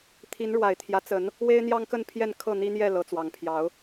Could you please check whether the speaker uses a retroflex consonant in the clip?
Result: yes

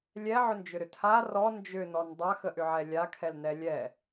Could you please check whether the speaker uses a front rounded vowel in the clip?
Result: yes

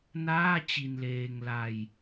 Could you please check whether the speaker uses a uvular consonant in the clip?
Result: no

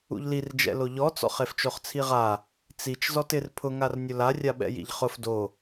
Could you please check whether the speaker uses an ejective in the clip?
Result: no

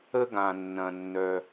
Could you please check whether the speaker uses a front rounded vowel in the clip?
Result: yes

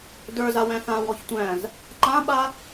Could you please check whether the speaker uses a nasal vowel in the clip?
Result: yes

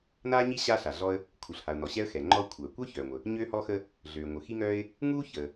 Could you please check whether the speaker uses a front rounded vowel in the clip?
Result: yes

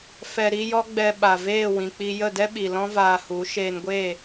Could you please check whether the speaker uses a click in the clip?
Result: no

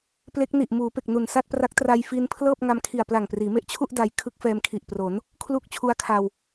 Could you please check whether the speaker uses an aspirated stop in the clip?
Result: yes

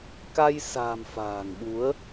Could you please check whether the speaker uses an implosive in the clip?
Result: yes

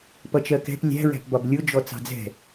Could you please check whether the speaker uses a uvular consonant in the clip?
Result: no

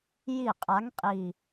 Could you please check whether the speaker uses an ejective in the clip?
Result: yes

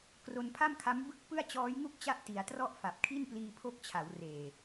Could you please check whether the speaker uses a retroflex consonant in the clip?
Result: no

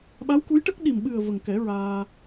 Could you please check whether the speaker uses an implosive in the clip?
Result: yes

